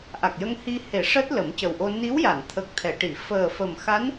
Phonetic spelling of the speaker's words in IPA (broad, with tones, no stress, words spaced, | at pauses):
ʔa˨˩k̚jə˧ŋhi˧he˨˩˦ ʂəː˦˥t̚lə˨˩˦m cə˨˩wʔo˧ ni˧˥wja˨˩˨nt̪ʰə˨˩k̚ t̪ʰɛ˨˩˨ʈi˨˩˨ fəː˨˩fə˨˩mxa˧˥n